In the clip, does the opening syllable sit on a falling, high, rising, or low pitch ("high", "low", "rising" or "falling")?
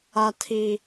high